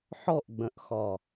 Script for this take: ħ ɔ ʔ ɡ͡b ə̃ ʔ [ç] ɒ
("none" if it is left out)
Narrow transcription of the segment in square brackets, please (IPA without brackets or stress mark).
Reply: x